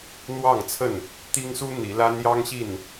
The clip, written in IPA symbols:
n̪ w ɑ˥˨ ŋ t͡sʰ ə˥˨ n | t̪ i˦ ŋ s u˦ n̪ i˨˦ l a˦ n j ɑ˦ ŋ ɕ i˥˨ n

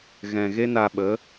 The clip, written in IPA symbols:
ɣ ɛ̃˨ ɣ e˦ n a˧ ɓ ə˨˦

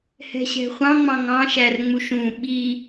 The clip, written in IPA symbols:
h ɛ̤ ɕ ɛ̤ χʷ ɑ̃ ŋ͡m ɑ̃ ŋ ɑ̃ ʃ æ r ŋ͡m u ʃ ũ ɓ i

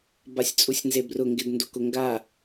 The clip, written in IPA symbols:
b a sʲ t͡sʼ u sʲ n z e b r ʊ ŋ ɡ ɪ d n d o k ʊ ŋ ɡ a

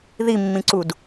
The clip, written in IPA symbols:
ð i mː ĩ ǀ u d

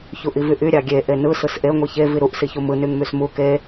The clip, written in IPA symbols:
ç u ʔ i v y ʔ y ɾʲ ɑ ɡʲ e ʔ e n ɯ s ɯ s ʔ e ŋʷ i ç e v i ɾ u ʔ s i ç u m ɯ n y ŋ m y s m u k e

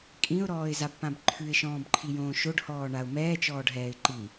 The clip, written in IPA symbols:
kʼ ĩ ʊ̯ ɾ ɔː ɪ̯ z a b p ã b ǃʰ ʉ ɪ̯ ʃ ɔ̃ː b ǃʰ i j õː ʃ o ɖ h ɔː ɳ a ʊ̯ m ɛː t͡ʃ ɔː ɖ ɦ ɛː ɪ̯ ǃ i

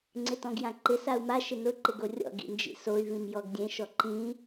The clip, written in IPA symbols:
ŋ͡ǀ ɪ t ɔ̃ ɡ j ã ǃ ɪ s a u̯ m a ʃ ɪ n ʊ ǃ ɪ ɡ o rʲ ɔ̰ ɡ ḭ n d͡ʒ ḭ s o y̯ v ĩ m j ɔ ɡ dʲ ẽ ʃ ɔ ǃ ĩ

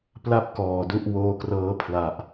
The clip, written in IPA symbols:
p l a˥˩ p̚ k ɔː˨˩ d u˥˩ ʔ w oː˧ k r ɤː˦˥ pʰ l a˨˩ ʔ

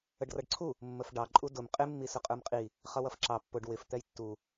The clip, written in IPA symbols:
ə ɖ r ʌ ɖ ǀʰ u | mː ə f ɖ ɑ ǃʼ u d ʊ m qʼ ɪ mː i s ʊ qʼ ə˞ m qʼ i | χ ʌ w ʌ f ǁ ɑ pː ʊ ɖ w ɪ f t̪ ɛ j tː u

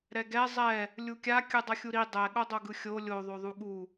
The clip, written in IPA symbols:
ɾ ɛ ɡ ɛ zˤ ɛ | lʲ u kʲ a kʲ ɯ dˤ ʌ xʲ u ɾ i dˤ ɛ ɠ o dˤ o ɡ ɯ xʲ o lʲ o ðˤ o ðˤ u ɠ u

